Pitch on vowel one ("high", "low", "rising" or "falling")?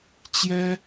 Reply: high